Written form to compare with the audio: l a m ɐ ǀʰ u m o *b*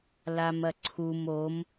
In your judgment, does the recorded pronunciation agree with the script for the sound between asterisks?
no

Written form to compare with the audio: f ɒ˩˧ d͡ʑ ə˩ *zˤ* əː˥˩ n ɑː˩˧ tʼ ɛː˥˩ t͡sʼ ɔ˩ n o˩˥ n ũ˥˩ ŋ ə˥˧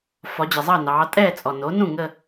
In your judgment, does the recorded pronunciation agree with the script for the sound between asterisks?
yes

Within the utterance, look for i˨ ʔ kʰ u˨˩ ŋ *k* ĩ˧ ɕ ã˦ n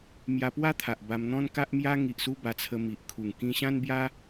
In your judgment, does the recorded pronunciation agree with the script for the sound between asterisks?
yes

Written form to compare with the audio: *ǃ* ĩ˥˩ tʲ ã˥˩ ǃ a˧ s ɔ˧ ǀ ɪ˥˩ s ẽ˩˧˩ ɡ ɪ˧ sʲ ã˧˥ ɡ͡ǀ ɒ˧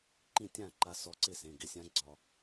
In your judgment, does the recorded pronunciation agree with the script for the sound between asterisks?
yes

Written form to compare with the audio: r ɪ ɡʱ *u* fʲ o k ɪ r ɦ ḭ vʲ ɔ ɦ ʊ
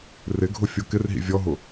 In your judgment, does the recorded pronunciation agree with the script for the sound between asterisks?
no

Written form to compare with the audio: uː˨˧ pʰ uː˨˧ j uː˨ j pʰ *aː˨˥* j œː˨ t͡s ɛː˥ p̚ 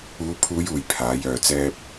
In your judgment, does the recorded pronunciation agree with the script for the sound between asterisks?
yes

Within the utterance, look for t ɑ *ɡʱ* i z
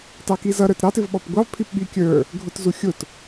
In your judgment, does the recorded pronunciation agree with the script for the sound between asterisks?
no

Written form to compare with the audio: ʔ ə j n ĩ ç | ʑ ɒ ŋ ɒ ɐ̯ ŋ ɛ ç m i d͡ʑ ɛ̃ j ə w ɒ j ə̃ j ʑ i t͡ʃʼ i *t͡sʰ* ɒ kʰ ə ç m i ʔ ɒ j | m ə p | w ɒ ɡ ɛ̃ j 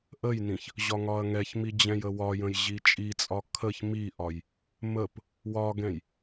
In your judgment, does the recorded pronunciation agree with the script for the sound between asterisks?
no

